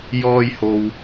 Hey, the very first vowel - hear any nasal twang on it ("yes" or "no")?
no